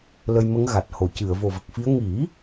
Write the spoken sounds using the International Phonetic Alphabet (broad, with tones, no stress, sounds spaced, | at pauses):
l ə˧ j m ə˧˥ ŋ ɣ a˨˩ t̚ h o˨˩˨ c ɨ˨˩˨ ə̯ v o˨˩ v ə˨˩ k̚ f i˧˥ ə̯ ŋ i˨˩˦